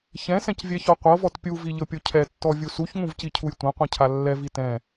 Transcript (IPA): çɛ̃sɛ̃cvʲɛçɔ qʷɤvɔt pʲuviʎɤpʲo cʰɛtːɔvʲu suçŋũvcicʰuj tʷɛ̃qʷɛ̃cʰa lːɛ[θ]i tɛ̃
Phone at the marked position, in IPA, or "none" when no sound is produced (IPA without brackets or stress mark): v